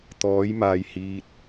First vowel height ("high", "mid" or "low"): mid